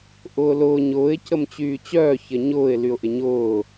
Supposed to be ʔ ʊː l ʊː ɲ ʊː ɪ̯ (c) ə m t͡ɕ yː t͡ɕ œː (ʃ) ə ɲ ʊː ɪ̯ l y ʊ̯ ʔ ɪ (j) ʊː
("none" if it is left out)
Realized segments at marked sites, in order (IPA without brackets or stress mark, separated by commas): c, ç, ɲ